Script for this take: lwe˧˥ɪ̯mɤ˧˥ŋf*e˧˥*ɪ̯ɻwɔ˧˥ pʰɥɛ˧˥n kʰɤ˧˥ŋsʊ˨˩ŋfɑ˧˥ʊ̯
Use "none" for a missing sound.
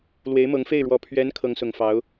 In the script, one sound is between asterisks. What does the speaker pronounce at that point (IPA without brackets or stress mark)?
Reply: e˥˩